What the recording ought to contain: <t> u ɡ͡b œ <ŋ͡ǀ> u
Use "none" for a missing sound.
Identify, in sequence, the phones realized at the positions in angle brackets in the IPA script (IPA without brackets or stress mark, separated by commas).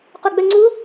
q, ŋ͡ǀ